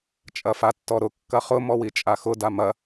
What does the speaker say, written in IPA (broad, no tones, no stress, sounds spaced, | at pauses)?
t͡ʃʼ ɐ f a tː ɔ ɾ ʊ kː ɐ χ ʊ m ɔ w i t͡ʃʼ a x ʊ d a m ɐ